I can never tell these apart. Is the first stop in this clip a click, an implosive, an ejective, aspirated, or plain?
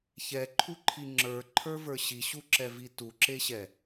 click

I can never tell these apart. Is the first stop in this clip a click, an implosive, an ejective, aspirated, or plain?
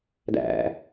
plain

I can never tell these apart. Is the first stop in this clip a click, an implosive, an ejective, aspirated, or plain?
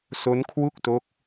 aspirated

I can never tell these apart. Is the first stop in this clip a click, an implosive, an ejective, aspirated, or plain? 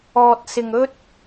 plain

